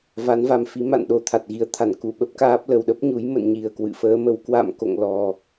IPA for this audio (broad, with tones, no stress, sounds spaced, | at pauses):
v a˨˦ n v a˧ m f i˨˦ m a̰˧˨ n ɗ o˨˩ t̪ʰ a˨˩ t̚ ɣ i˨˦ ə̯ t̪ʰ a˧˩ n k u˧˩ ɓ ə˦˥ p̚ k aː˦˥ p̚ l ə˨˩ w ɗ ə˦˥ p̚ ɲ u˨˦ j m ə̰˧˨ n ɲ i˨˩ ə̯ k w ɨ̰˧˨ f əː˨˦ m ə˨˦ w k w a̰˧˨ m k o̰˧˨ ŋ l ɔ˨˩